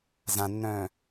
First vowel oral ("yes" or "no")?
no